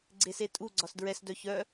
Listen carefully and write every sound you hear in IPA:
ɡ͡ǀ e s e tʼ u ɡ͡ǀ ɒ s d ɹ ɛ s d œ ç œ

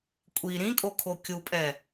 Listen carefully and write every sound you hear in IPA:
kʷʼ i ɾ ĩ kʼ o kʰ o kʲ u pʼ ɛ

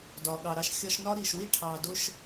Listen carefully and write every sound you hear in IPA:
d ɒ˨ ɠ ɑ˨ ɾ ɑ˦˨ ʃ xʲ ɒ˦ ʃ n ɒ˦ ɾ i˨ ʃ w i˦ ʈʰ ɑ˨ d ʊ˦ ʃ

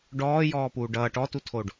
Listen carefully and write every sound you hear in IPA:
ɖ ɔː j ɔː p uː ɖ ʌː ʈ ɔ t u tʰ o ɖ

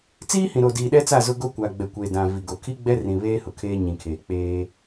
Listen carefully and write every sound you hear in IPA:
t͡s iː˦ h ĩ˨ ɾ o˨ d iː˨ ɗ ɛ˦ t͡s a˦˨ z ʊ˦ ɡ o˦ kʷ a˨ ɡ͡b ɛ˨ kʷ eː˨ d ã˨ v i˨ ɡ o˨ kʰ i˦ ɡ͡b ɛ˦ r ĩ˨ β eː˦ h ʊ˨ kʰ eː˦ ɲ ĩ˨ kʰ eː˨ k͡p eː˦

